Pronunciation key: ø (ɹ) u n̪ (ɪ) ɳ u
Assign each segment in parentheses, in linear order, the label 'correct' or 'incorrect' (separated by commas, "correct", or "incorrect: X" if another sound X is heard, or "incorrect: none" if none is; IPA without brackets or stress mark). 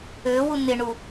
incorrect: w, correct